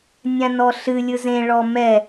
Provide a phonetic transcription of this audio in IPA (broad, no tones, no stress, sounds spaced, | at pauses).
nʲ ã n ɔ ɬ ɨ lʲ ɯ z ẽ ɭ ɔ m ɛ